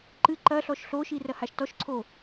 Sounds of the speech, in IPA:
ǃ ɨ ǃ ɐ ɬ ɔ ʃ ɬ o ʃ i r ɐ h a ʃ t ɔ ʃ ǀʰ o

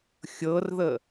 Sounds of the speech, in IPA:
xʲ ɤ r ð ə

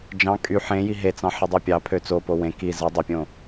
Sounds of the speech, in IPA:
d͡ʒ ɑ̃ kʼ y ħ ẽ j i ɦ e t͡s ɑ̃ ħ e dˤ i pʲ ɑ pʰ ø t͡s o p o w ẽ k i z ɯ dˤ e pʲ õ

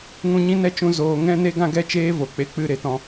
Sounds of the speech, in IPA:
ŋ ũ˧ ɲ ĩ˦ n ɛ˦ t͡ʃ ũ˧ z oː˧ ŋ ɛ̃˦ n e˦ ɡ ã˦ ɡ ɛ˦ t͡ʃ eː˦ v o˨ k͡p e˧ k͡p ɨ˦˨ ɾ e˦ t ɔ̃˧

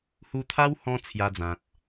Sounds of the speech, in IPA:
h u˧ t̪ʰ a˦ w h ɔ̃˧ t͡sʰ j a˧ d͡z ã˨ t̚

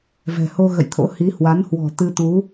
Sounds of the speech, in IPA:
v ɛ̤˨˩ h o˧ ɣ ə̰˧˨ j t̪ʰ o̰˧˥ h i˨˦ h w a˨˦ n h w ɔ̤˨˩ t̪ ɨ˧ t̪ u˨˦

